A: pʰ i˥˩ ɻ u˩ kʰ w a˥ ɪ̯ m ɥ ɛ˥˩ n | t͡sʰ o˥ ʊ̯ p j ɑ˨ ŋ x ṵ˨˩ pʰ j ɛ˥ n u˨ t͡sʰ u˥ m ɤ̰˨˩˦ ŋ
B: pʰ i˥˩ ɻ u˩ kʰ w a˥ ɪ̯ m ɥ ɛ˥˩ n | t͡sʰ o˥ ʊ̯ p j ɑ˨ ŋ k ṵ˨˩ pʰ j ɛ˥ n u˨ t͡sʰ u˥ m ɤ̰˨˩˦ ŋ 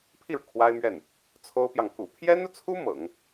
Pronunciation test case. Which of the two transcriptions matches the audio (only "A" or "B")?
B